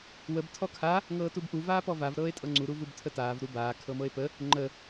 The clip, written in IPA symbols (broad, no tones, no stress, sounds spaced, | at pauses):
w ə b tʰ ɔ kʰ a | ŋ ɤː t u b ʔ u v aː p ɔ v a v ɾ ɤː e̯ tʼ ɤ ŋ͡ǀ u ɾ u v u b tʰ ə t aː v ɾ u b aː kʰ ɤ m ɤ e̯ p ə | ŋ͡ǃ ə